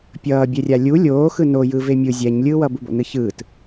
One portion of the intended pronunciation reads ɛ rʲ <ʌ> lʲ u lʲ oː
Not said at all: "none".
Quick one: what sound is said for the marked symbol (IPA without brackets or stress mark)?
a